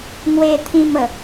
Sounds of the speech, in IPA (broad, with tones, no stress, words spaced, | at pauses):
ŋwe˧t̪ʰĩ˧m ə˨˦